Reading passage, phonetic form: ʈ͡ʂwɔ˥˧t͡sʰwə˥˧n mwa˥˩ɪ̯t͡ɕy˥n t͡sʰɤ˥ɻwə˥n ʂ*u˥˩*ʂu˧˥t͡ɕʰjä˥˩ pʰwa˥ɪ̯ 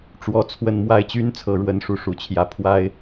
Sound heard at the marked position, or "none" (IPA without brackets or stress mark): u˥˩